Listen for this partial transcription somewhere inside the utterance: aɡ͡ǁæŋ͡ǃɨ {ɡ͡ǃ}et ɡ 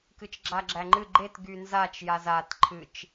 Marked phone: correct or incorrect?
correct